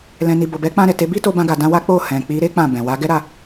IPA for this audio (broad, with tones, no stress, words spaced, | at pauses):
lɛ̃˨ni˨ bo˨bɛ˨˦ k͡pã˧ɾɛ˨te˨˦ bi˦to˧bã˧ɡa˨ dã˧wa˦k͡po˦˨ hɛ̃˨ k͡pi˨˦ɾe˦ k͡pã˦˨bɛ̃˨ wa˨˦ɡɛ˦ɾa˧